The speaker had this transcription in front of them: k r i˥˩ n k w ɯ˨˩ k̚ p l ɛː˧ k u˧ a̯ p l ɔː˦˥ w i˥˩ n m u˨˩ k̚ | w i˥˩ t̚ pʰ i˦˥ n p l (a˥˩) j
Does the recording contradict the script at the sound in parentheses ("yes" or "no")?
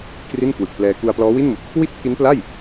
no